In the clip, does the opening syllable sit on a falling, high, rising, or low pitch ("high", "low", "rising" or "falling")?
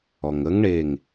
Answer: low